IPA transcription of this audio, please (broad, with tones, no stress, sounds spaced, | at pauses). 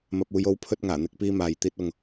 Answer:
m ɐ˧ p̚ uː˧ j o˥ w pʰ ɵ˥ t̚ ŋ aː˨˩ n̪ ɪ˥ k̚ p iː˥ m aː˧ j t̪ iː˥ t̚ ʊ˧ ŋ